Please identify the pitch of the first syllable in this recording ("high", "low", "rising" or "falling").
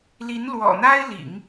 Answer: rising